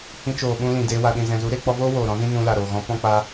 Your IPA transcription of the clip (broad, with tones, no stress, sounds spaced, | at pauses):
h ĩ˧ t͡ʃ oː˨ ɓ ũ˧ l ĩ˨ d eː˧ w a˨ ɗ ĩ˨ z ɛ̃˨ z u˨˦ ɾ eː˧ k͡p ɔ˧ v oː˦ w oː˨ ɾ ɔ̃˨˦ z ĩ˦ n ũ˧ l a˨ ɾ oː˨ ɣ ɔ̃˨˦ p ɔ̃˦ k͡p a˦